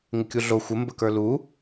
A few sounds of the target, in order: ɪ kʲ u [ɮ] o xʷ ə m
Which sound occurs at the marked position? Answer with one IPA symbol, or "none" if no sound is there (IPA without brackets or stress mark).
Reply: ɮ